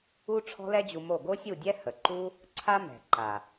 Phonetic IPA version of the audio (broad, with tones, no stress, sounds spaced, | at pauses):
u˦ ʈ͡ʂʰ ɔ̤˦ l ɛ˦ d͡ʑ u˧ m o˦˨ ɡ o˦ sʲ u˦˨ dʲ ɛ˦ h ə˨ ǃ u˦ | ǀʰ a˦ m ɛ̤˨ ǃ a˨